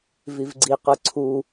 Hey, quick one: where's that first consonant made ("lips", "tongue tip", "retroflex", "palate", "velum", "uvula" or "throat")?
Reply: lips